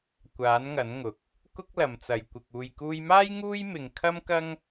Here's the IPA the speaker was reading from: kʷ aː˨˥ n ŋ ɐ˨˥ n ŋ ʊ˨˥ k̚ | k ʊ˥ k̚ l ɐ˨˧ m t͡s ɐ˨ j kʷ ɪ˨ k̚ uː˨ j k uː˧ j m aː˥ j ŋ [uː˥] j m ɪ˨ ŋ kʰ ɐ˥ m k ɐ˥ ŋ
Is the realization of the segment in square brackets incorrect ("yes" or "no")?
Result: no